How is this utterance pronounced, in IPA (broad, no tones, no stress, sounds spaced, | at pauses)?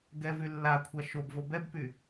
ɡ ɛ v y lː a kʷʰ a ʃ o b v o b ɛ b p y